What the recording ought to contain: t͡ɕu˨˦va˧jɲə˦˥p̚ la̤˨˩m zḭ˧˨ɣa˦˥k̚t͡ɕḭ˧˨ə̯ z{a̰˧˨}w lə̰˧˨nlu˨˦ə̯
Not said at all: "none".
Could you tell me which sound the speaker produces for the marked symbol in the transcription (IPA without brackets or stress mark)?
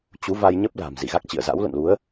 a̰˧˥